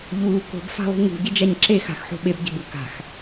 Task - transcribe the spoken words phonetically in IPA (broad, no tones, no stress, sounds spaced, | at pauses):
ʎ uː k o̤ b f a̤ lˠ ṳ ŋ ṳ ɟ e d͡ʒ a ɲ ǁ e x a̤ x ħ o̤ ɓ e b ɟ e̤ b u k a̤ x